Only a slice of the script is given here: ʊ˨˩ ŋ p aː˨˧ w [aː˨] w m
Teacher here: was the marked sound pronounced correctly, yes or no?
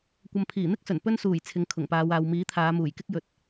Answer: yes